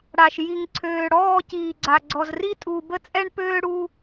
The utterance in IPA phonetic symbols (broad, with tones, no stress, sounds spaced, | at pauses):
ɽ a˨ ʃ j i˨ ŋ ǀʰ øː˨ ɽ ɔː˦˨ c iː˨ ɡ͡ǀ a˨ ɡ͡ǀ ɔ˨ z r i˦ tʼ u˨ b ə˦ t͡sʼ ɛ˦ ɳ p øː˦ ɽ u˦